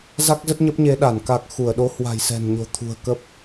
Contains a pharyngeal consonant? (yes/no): no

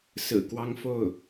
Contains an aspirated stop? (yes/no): no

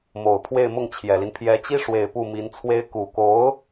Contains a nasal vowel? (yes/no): no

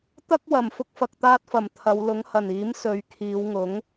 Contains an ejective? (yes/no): no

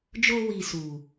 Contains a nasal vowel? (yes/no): no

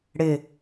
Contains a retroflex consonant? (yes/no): yes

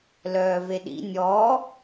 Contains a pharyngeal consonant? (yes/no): no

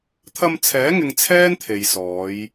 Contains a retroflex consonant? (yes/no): no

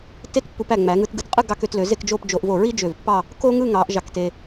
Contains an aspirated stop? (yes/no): no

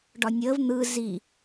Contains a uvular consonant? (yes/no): no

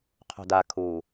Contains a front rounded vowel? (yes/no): no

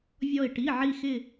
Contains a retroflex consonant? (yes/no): yes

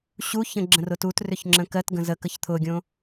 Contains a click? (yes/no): yes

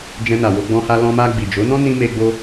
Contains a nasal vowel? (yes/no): yes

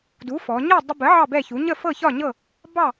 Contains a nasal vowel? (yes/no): no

